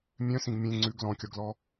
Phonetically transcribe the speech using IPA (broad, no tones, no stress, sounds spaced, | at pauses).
mʲ œ̃ s ĩ ɡ mʲ ẽ ŋ͡ǀ ʉ ɡ l ɔ̃ kʲ ɔ ɡ l ɔ